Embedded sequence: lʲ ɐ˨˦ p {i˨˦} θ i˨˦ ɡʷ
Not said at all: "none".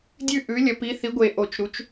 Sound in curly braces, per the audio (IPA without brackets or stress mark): i˨˦